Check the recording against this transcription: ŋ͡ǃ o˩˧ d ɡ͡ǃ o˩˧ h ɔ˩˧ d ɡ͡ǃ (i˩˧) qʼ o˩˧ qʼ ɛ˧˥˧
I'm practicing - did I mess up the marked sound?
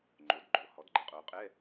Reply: yes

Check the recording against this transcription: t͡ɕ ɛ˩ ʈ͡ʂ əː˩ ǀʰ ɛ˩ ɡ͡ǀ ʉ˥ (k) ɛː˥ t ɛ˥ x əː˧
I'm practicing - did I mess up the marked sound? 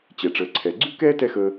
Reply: no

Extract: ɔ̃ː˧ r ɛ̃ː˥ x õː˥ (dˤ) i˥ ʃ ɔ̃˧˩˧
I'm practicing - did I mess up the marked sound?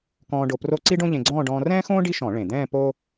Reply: yes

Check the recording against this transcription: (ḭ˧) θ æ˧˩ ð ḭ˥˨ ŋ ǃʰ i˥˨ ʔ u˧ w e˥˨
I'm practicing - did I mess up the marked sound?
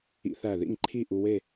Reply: no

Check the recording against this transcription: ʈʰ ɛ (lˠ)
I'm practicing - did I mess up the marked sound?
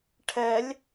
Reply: yes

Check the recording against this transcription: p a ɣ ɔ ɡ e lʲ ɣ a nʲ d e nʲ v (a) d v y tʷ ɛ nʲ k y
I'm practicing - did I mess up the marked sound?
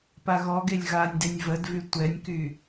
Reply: yes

